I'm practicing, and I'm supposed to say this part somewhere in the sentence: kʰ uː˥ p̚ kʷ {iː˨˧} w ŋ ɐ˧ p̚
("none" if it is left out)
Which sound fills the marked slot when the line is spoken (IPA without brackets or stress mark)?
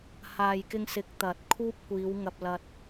iː˨˧